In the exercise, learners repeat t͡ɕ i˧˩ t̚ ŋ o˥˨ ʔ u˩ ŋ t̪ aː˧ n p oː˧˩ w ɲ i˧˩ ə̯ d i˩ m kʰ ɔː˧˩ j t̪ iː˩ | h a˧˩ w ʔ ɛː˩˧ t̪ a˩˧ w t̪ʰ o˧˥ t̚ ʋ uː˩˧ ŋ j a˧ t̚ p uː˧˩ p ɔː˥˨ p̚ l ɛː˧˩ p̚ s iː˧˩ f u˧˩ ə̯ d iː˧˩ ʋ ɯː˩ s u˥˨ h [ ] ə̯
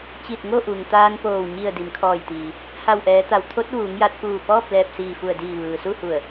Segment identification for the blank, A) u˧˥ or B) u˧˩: B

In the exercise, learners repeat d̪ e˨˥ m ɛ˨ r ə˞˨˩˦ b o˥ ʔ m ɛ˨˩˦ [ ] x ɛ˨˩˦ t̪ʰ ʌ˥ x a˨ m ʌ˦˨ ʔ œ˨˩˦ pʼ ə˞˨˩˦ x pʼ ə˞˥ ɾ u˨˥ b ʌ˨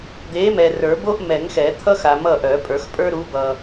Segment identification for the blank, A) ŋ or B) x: A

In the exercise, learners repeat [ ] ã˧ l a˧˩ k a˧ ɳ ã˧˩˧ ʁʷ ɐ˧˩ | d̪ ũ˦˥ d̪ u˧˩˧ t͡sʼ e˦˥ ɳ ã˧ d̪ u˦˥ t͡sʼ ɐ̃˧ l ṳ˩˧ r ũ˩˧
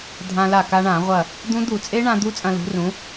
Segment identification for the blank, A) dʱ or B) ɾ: A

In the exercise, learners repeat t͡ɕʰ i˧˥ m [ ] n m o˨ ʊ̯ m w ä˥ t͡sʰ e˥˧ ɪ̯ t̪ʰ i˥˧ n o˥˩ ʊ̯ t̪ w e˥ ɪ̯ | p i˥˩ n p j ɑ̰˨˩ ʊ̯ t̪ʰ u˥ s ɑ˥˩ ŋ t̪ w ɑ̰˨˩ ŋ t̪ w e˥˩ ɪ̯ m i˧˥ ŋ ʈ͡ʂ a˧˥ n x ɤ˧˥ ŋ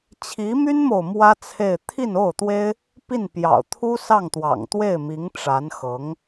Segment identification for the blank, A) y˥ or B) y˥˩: A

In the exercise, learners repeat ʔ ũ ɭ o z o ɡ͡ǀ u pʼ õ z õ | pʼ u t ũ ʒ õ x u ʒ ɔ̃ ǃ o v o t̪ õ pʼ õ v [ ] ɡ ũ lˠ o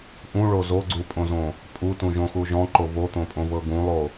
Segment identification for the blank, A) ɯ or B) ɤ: B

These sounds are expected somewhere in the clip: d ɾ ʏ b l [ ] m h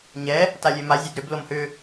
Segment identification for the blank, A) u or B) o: B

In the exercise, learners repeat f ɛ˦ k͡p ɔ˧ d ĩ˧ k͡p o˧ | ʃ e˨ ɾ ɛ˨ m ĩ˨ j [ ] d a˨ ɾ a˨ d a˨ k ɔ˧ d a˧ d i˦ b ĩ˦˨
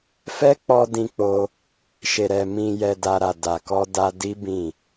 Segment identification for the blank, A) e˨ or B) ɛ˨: B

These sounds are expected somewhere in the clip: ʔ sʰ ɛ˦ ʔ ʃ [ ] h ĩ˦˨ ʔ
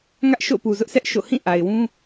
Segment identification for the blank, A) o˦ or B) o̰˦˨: B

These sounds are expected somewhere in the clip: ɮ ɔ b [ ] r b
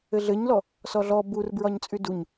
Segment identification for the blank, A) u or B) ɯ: A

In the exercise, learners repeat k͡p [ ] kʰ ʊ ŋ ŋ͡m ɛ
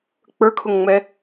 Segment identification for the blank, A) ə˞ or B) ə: A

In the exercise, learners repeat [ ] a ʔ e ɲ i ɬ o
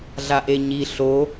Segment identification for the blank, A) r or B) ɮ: B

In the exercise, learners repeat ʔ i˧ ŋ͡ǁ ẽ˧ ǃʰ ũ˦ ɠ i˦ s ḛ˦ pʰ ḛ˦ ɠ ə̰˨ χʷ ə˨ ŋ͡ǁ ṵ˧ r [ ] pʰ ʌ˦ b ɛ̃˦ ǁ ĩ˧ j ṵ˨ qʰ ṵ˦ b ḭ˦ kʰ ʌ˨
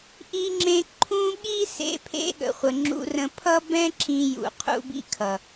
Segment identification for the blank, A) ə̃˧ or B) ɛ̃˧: A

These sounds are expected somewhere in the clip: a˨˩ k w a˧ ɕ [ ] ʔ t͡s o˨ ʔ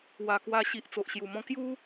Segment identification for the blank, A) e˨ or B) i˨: B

